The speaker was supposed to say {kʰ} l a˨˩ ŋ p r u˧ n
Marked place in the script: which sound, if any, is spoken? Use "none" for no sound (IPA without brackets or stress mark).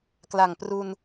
k